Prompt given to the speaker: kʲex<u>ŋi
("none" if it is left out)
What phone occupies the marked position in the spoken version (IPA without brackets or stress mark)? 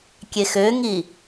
ø